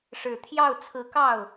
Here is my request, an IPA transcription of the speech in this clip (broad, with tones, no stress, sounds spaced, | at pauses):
ʂ ɻ̩˨˩ t̪ʰ j ɑ˥˩ ʊ̯ t͡sʰ ɹ̩˧˥ k ɑ˥˩ ʊ̯